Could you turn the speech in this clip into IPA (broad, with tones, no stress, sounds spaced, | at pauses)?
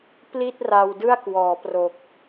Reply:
p l i˥˩ t̚ r a˧ w d ɯ˥˩ a̯ k w ɔː˩˦ p r o˨˩ k̚